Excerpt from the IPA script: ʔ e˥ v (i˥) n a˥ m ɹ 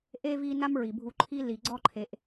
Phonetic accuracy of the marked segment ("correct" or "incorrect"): incorrect